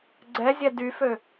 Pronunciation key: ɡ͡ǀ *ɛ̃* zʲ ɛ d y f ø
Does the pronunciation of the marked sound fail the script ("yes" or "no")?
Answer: yes